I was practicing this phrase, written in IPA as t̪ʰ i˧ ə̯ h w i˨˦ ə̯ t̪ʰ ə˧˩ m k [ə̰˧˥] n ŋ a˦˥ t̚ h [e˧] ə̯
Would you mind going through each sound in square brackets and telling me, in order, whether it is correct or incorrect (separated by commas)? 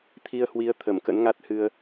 correct, incorrect